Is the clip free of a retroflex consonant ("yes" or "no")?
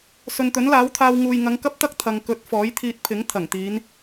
yes